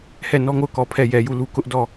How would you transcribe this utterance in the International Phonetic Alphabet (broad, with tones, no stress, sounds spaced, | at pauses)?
h ɛ˦˨ n ɔ˦ ŋ o˦˨ ʊ̯ k ɔ˨ pʰ ɛ˦˨ j ɛ˨ j u˦˨ l u˦ k ʊ˦ ʔ d ɔ˦˨